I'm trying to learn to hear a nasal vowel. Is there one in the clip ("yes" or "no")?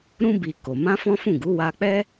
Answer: yes